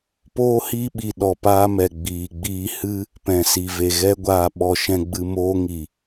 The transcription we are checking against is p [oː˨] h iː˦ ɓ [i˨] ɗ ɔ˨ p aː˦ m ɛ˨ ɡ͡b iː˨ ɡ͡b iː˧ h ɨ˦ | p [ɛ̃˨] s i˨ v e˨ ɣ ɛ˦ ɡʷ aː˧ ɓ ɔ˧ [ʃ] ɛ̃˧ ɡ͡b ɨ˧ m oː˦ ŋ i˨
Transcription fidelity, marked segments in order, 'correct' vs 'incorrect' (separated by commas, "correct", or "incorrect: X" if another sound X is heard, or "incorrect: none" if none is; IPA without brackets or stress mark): incorrect: oː˦, correct, correct, correct